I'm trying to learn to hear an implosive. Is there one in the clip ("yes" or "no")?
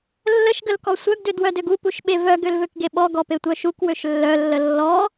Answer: yes